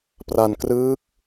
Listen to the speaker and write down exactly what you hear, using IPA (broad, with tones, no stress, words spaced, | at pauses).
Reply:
pra˧nkrɯː˦˥k̚